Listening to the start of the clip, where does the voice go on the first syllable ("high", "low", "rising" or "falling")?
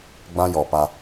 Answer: high